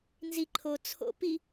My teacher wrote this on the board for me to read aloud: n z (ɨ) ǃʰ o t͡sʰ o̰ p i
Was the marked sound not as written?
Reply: yes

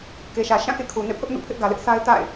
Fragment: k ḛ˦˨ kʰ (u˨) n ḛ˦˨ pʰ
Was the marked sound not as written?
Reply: no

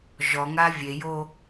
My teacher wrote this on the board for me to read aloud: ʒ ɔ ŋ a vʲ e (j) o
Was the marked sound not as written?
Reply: no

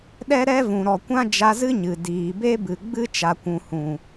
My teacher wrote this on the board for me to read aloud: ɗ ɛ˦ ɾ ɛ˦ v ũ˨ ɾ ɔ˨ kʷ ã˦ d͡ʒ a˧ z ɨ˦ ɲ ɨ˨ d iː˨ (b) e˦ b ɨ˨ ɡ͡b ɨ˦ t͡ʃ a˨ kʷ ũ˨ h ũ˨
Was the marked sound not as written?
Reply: no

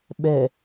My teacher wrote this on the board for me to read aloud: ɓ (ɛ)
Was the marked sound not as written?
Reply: no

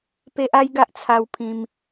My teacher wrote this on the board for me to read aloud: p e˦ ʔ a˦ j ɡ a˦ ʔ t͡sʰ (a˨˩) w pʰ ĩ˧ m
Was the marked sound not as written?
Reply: yes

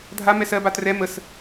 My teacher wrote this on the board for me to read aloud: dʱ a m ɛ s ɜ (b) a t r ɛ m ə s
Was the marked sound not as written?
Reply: no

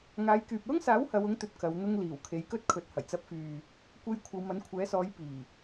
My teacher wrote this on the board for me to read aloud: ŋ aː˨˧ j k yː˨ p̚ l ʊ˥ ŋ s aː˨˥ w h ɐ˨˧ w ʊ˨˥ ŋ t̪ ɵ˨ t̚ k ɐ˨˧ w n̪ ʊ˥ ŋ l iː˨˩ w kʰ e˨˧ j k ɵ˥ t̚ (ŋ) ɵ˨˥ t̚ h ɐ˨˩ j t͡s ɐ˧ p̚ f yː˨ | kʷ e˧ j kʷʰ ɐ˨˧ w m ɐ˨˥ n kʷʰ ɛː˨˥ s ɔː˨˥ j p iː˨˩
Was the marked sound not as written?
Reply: yes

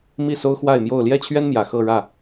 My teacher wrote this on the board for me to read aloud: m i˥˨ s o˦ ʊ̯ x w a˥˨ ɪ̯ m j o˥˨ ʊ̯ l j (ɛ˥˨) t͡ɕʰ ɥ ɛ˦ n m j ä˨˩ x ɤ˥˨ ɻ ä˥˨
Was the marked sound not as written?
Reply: no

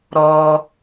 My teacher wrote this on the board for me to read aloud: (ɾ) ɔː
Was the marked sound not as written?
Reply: no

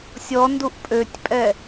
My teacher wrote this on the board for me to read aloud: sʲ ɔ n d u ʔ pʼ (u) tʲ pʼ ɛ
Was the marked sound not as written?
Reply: yes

